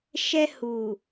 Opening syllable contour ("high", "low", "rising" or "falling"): high